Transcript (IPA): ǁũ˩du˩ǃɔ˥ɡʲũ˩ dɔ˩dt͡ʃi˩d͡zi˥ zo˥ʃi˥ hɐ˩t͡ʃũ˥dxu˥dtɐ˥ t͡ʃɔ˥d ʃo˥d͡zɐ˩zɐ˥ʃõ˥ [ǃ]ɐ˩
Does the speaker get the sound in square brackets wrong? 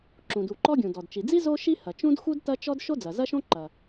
no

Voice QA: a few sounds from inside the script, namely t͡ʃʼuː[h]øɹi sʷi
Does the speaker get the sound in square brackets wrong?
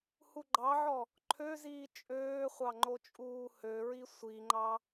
no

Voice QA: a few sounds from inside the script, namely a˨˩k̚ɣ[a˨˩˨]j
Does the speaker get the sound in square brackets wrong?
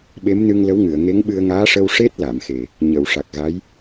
yes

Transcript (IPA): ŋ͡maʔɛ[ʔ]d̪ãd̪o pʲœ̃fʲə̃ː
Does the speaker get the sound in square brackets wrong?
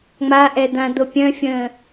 yes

